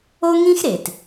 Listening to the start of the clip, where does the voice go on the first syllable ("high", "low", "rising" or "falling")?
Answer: high